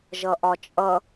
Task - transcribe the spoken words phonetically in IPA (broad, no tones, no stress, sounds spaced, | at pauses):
ʒ ʌ ʔ ɒ t͡ʃʼ ʌ